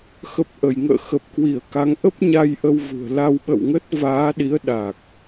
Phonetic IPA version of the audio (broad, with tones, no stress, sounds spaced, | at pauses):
x ə˨˩ p̚ ʔ ə˧˩ j ŋ ə̰ː˧˨ x ə˨˩ p̚ k w i˧˩ ə̯ k a˨˦ ŋ ʔ ə˦˥ p̚ ɲ a˧ j ʔ ə˧ w v ṳ˨˩ ə̯ l a˧ w ɓ ə̰˧˨ w ŋ ə˦˥ t̚ v aː˨˦ ɗ i˨˦ ə̯ ɗ a˨˩ k̚